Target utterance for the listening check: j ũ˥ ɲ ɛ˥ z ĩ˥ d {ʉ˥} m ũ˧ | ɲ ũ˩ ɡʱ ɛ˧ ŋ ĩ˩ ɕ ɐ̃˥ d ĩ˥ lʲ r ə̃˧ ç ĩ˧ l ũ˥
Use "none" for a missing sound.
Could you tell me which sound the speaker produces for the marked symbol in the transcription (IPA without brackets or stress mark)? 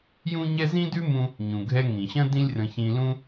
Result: ʉ˥